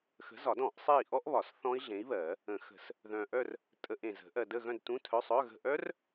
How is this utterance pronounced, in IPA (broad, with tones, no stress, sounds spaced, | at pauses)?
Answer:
x ə̤˨˥ z ɒ˨˩˦ d ɔ̃˨˩˦ ʔ sˤ e˦˨ i̯ ʔ ɔ˦˥ ʔ β ɒ˨˩˦ s θ ɔ̃˦˥ i̯ ɮ ẽ˨˥ i̯ β ɜ˨˩˦ | ə̃˨˩˦ x ə̤˨˩˦ s | ð œ̃˨ ʔ œ˦˨ r | tʼ ə˧˥˧ ʔ ẽ˨ z ə̤˨˩˦ ʔ ɜ˨ d ə˦˨ ɣ œ̃˦˨ d t ũ˧˥˧ tʰ œ˧˥˧ sˤ œ˧˥˧ ɣ ə̤˦˨ ʔ œ˦˥ r